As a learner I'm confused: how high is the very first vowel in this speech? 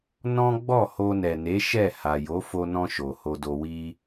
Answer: mid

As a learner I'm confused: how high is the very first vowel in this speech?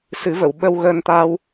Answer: high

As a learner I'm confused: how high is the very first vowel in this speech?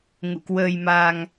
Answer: high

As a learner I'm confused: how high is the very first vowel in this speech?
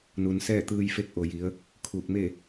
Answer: high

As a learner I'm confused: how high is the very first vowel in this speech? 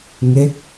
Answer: mid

